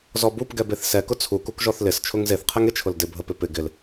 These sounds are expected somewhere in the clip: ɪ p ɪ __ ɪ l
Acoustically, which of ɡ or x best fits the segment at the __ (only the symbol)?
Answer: ɡ